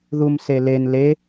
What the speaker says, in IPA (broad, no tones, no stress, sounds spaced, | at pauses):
ð u m s e l e n l e